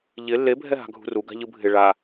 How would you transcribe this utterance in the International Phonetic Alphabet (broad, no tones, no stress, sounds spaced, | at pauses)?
ʎ ɪ lː e bʱ ɛ ɦ a̤ ɡʱ ṳ r u ɡ a̤ ʎ ɯ bʱ ɪ ɭ a